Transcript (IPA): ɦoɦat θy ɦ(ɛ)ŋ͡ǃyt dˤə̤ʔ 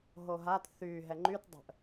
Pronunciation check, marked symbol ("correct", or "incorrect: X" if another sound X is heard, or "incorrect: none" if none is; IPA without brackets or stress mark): correct